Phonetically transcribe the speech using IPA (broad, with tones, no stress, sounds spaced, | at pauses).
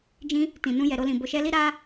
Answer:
d͡ʒ ĩ˧ | t ĩ˨ n ũ˧ j ɛ˨ ɾ o˧ l ĩ˨ b o˨ ʃ ɛ˧ l i˦ ɾ a˦